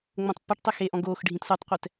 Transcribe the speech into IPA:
ŋ͡mõtˤpːʌʈtˤɛ xeʔɔ̃ ɡoːx ɖʱĩtsʷetˤqʷɛt

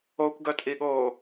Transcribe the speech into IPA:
okʷɡœtʼiɠoː

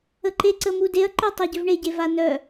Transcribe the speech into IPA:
əǃe ǀəmudeɐ̯ ǃœtˤaɟøvɳe ɟevanœ

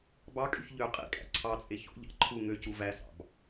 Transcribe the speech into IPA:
bɑkʼyç ʎø qʼḭkʼæ̰ ǀʰɑt͡sʼe ço̰ʎɑ̰ ǃʰu ŋøcu væsɑ̰b

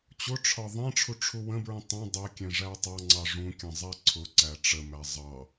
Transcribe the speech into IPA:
t͡ɕʊʈ͡ʂʰɒ ðˤɛ̃ʈ͡ʂʰu ʈ͡ʂʰuwə̃bɹũ tˤɛ̃ dˤɜkʲɛ̃ ʐætˤɑŋ͡ǀɑ ʐũkʲə̃ zˤɛǀʰʊǀæ ʈ͡ʂəmæ zˤɑ

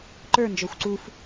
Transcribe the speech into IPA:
ǃə˞nd͡ʒɔxʷ ǀuf

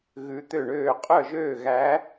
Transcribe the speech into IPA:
ɣʉ˧˥t̪ø˥˨ɳøː˥˨ qʼœ˥˨ʒøː˥˨ɣæ˧˥

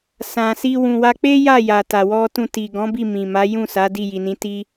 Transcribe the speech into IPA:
sã˨si˧ wũ˨wa˧k͡pe˦ ja˦˨ja˨ta˨ wɔ˧tũ˧ ti˨ɡɔ̃˨˦ bi˦˨mĩ˨ma˨˦ jũ˦˨sa˨˦ di˦˨ji˨nĩ˨˦ ti˦

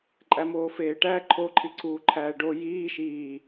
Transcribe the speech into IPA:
ǃʼæmoːfeːʈæ ǃʰoǃʰiǀuː ǃʰæːɖo jiː ʃiː

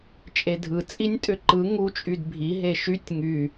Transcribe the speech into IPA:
t͡ʃʼedʱɯ t͡sʼinʲtʼʏǃɯ ŋut͡ʃʼyd bʱiɦe ʃytʲ ŋy

